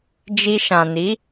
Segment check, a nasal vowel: present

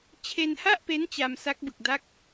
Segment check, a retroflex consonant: absent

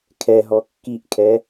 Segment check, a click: absent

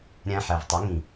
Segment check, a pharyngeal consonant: present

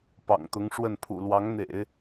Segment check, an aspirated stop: present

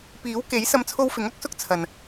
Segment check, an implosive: absent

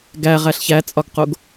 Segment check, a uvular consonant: present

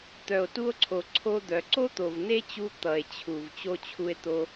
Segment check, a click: present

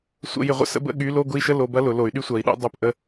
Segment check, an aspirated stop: absent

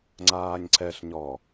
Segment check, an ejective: absent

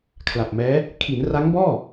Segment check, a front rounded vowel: absent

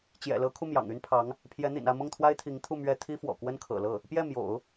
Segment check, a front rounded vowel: present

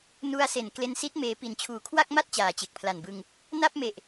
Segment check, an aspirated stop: present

